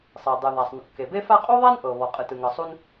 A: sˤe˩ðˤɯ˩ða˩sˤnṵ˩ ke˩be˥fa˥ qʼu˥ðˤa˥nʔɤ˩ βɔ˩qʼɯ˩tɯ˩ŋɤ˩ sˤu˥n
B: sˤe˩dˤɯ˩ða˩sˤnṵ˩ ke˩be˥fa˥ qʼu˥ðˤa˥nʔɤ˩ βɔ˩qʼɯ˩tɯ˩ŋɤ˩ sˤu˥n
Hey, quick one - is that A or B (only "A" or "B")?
B